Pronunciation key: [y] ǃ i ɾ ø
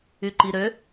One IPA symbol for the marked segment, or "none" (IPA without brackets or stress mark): y